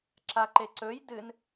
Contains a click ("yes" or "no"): yes